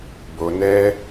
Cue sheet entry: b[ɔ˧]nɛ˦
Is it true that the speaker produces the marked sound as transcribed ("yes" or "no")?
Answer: no